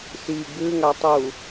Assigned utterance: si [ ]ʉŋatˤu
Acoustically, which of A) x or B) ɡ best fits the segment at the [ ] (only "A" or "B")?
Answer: B